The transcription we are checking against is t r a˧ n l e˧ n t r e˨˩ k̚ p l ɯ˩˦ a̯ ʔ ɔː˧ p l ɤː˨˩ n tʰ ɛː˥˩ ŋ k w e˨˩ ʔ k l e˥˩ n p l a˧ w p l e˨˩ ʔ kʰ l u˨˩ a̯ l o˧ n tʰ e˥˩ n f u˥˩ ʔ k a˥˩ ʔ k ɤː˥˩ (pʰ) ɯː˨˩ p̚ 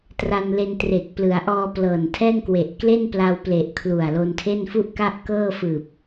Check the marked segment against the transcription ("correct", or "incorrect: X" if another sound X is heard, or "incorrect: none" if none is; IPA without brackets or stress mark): incorrect: f